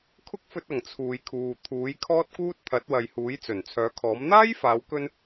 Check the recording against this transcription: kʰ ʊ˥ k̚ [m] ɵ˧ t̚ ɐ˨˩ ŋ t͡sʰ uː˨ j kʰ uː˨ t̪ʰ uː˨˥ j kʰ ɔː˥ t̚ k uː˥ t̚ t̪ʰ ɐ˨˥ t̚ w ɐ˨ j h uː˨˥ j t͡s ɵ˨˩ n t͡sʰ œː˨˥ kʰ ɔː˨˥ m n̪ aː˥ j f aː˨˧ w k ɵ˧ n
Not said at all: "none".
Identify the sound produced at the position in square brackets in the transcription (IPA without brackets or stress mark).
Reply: f